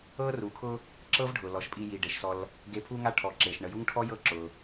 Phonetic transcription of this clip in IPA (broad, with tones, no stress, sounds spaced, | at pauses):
ɤ˦ r u˩ kʰ ʊ˦ | ǁ ɤ˦ v ɖʱ ʊ˩ l ɔ˩ ʃ pʼ i˨ j i˩ ɖ e˩ ʃ s ɔ˨ l | ɡ e˨ pʰ u˦ ŋ a˦ ʈʰ ɔ˩ ǁ e˩ ʃ ɳ ə˨ j u˥ ŋ ʈʰ ɔ˥ j ɤ˦ ǁ ʊ˩